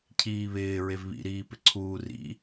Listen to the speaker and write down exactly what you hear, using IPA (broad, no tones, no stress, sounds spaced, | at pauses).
cʰ iː β ɪː ɹ e v β ḭ ɾ iː p ɪ ǀʰ uː r ḭ